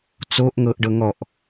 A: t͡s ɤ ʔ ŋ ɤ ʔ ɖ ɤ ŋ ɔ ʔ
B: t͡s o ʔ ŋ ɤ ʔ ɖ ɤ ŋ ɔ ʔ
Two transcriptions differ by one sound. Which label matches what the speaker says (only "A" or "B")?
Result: B